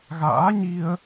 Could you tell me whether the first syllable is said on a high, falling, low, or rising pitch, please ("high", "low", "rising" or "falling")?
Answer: rising